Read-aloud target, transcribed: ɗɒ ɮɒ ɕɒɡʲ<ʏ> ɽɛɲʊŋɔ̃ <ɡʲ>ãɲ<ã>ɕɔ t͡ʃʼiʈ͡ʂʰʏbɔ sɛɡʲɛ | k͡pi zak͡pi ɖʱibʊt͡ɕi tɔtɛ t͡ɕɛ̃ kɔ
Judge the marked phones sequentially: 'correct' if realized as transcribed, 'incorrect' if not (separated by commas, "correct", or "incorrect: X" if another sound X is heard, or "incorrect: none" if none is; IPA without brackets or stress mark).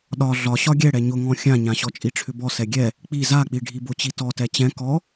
incorrect: ɛ, incorrect: xʲ, correct